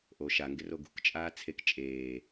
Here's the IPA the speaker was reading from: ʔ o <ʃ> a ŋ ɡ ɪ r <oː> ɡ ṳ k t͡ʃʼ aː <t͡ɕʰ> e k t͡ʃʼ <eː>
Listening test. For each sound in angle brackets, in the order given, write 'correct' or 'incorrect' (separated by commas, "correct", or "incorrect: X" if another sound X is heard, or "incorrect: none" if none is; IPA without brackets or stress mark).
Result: correct, incorrect: o, incorrect: t͡sʰ, correct